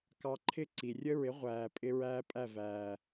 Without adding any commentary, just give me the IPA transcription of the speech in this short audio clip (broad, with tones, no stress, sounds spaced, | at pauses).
k ɑ˧ ǃʰ ɪ˦ ǀ i˨ rʲ ə˦ ɹ ɪ˨˦ ʁʷ æː˨ pʼ ɪ˧ ɹ æː˦ pʼ æ˦˨ v æː˨